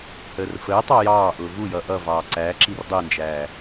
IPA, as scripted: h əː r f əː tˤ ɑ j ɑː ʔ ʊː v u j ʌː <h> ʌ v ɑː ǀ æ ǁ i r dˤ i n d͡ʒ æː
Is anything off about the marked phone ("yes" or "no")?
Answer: yes